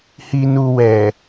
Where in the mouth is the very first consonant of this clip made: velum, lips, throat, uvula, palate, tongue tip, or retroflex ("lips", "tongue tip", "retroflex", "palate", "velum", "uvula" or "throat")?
throat